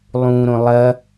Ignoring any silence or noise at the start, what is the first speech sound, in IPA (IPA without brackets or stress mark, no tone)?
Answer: lˠ